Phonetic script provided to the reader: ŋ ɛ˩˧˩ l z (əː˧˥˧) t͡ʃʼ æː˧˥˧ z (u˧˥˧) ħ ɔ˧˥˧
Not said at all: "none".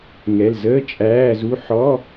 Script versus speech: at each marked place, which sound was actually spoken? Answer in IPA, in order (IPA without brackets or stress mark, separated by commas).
əː˧˥˧, u˧˥˧